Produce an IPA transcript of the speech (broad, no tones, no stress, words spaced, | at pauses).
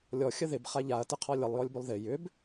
lʲɔ xʲəðɪb χaʎaɐ̯tɪ qʰɔlʲəlˠjɔlʲbʏlˠ ðɪ jʏb